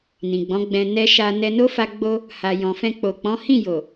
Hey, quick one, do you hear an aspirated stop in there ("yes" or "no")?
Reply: no